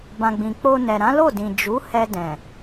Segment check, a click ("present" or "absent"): absent